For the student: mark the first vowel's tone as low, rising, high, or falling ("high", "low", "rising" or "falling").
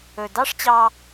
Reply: low